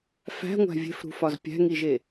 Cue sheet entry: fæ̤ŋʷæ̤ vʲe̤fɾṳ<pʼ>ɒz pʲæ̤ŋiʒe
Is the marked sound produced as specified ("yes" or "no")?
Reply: no